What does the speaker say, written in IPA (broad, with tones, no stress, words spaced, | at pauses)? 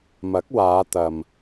mɐ˨˥k̚waː˨˧t̪ɐ˨m